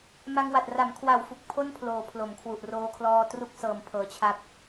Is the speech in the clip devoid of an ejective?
yes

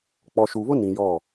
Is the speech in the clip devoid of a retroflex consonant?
yes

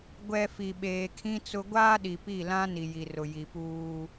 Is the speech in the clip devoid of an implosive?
no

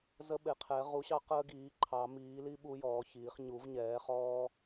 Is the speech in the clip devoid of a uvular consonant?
no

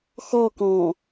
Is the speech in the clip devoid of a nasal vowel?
no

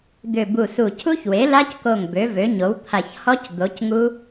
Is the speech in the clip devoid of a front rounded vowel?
no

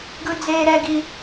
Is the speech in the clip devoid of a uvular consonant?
yes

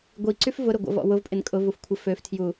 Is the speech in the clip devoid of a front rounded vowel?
no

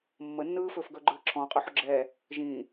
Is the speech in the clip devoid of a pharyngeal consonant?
no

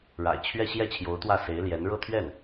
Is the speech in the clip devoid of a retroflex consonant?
no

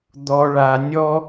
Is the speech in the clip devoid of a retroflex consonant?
no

